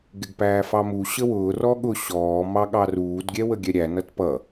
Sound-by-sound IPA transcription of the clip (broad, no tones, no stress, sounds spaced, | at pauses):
ɡ ɪ ɡ p æː f ɑ m u ɕ ə w ʊː r ɔ ɠ ʊ ɕ ɔː m ɑ ɠ ɑ r uː d ɡʲ ɛ w ə ɡʲ ɛ ɾʲ æ n ʌ t p ʌ